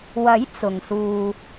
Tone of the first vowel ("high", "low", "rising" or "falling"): rising